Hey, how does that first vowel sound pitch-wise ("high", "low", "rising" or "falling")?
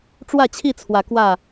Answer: falling